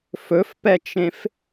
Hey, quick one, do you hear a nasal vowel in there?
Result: yes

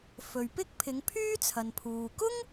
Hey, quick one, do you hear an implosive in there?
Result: no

